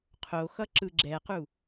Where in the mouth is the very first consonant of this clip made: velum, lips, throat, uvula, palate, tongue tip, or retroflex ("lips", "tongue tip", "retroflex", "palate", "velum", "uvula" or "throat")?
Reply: uvula